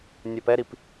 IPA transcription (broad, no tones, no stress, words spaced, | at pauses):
nʲapɛɾip